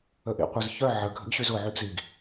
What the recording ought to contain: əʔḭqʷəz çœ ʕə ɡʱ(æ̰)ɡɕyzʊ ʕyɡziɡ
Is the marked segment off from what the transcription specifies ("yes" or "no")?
yes